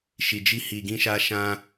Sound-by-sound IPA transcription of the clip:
ʃ i˨ d͡ʒ i˧ h i˨ ɡ ĩ˧ ʃ a˧ ʃ ã˧

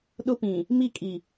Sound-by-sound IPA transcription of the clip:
ɗ ʊ˦ p ĩ˨ | m i˦˨ kʼ i˨

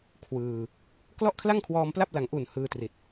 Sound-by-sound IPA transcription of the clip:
kʰ w ɯː˧ | k l ɔ˥˩ ʔ kʰ l a˥˩ ŋ kʰ w ɔː˧ m p l a˥˩ p̚ l a˨˩ ŋ ʔ u˨˩ n h ɯː˧ t r i˨˩ t̚

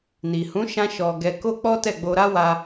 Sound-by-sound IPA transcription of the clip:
n i˨ h ũ˨˦ ʃ ã˦ ʃ ɔ˧ ɡ ɛ˧ k o˦ k͡p ɔ˦ t ɛ˦˨ ɡ͡b o˧ ɾ a˦ w a˧

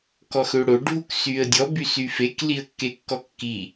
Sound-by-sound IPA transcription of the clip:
k ɔ x ø ɽ o ɖʱ u k s y ə̯ dʲ ɔ b y s y f e k l i ə̯ kː e kː ɔ kː i

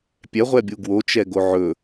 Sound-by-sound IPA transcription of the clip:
pʲ ɛ ʁʷ ɛ bʲ u ɡ w o t͡ʃ ɛ ɡ o ʕ ɵ

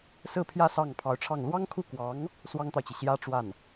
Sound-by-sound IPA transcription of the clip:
s ɹ̩˥˧ pʰ j ä˥˧ s ɑ˥˩ ŋ pʰ ɑ˧˥ ʊ̯ ʈ͡ʂʰ ɑ˥˩ ŋ l w ɑ˥ ŋ kʰ u˥˩ k w ɑ˧˥ ŋ | s w ɑ˥ ŋ t̪ ɑ˨ ʊ̯ t͡ɕ i˩ ɕ j ä˥ ʈ͡ʂ w a˥˩ n

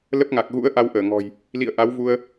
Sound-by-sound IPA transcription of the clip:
l ə˦˥ p̚ ŋ a˨˩ k̚ ɣ ṵ˧˥ ə̯ ʔ a˧ w ʔ əː˧˩ ŋ ɔ̤˨˩ j | l ḭ˧˨ ə̯ ʔ a˨˦ w v u˧ ə̯

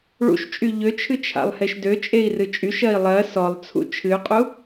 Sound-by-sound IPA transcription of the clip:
ɭ ṵ ʃ t͡ʃʼ y ʎ ø t͡ʃʰ ɨ t͡ʃʰ a̰ lˠ h e ʃ d ø t͡ʃʼ e i̯ r ɨ t͡ʃʼ y ʃ ɜ i̯ lˠ ɜ s ɔ lˠ t͡sʰ ṵ t͡ʃʰ ɨ y̯ qʼ u

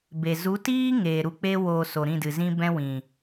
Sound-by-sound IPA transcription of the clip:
b e˨ z u˨˦ t iː˦ ŋ eː˨ ɾ u˧ k͡p e˦ w oː˧ s o˨ ɾ ĩ˦˨ d ɨ˨ z ĩ˦ b ɛ̃˦ w ĩ˨

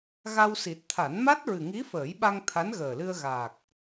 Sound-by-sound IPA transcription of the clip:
ɣ a˧ w s i˨˩ t̚ t̪ʰ a˨˩˦ n m a˦˥ t̚ ɹ ɨ˨˩ ŋ i˧˥ f əː˨˩˦ j ɓ a˧ ŋ t̪ʰ a˧˥ n ɣ əː˨˩ l ɨ˧ ə̯ ɣ aː˨˩ k̚

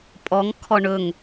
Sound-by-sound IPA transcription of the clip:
pʼ ɔ ŋ kʰ ɔ ɳ ɵ ŋ

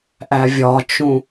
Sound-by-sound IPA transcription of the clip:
ʔ æ vʲ ɒ t͡ʃ ũ

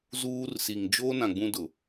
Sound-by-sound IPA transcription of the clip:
z uː˦ r s i˨ ŋ d͡ʒ oː˦ n ã˨ ɡ͡b ũ˦ d ʊ˨

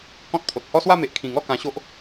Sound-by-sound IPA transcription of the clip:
k ɔ̃˦ t̚ pʰ o˨ t̚ h ɔ˦ s w a˥˧ m e˨ ʔ kʰ ĩ˨˩ ŋ ɔ˥˧ k ã˧ ɕ o˦ ʔ

